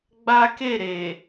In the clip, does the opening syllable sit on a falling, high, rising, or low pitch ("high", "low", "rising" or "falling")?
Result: high